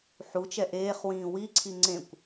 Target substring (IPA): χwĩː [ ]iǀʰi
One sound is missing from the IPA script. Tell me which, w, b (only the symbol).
w